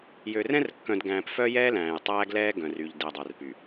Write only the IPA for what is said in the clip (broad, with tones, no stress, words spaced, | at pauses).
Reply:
jø˨rɛ̃˦rkːœ̃˨dɡæ̃ː˨p fœ˦jɛː˦læ̃ː˨j tˤæː˦ɡlɛː˦ ɡœ̃˨ry˨ʎ de˨dˤœ˨rpy˨